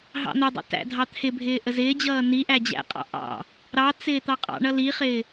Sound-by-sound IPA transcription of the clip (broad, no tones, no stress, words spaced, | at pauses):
ɦɑ̰n̪ədˤɑ̰ tæ̰dʱɑt̪ʰɪbʱɪː ʔəzɪːd͡ʑʌː niʔæ d͡ʑæ̰qʼɑ̰ ʔɑ̰ | ɾɑt͡sɪː t̪ɑqʼɑ̰ɳʌ liχɪː